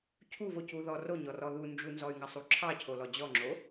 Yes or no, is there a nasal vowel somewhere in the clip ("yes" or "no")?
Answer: no